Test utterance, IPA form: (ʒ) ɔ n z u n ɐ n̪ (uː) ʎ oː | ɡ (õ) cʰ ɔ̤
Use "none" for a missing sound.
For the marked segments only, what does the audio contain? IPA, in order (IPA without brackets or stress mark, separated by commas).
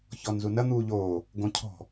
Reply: ç, uː, õ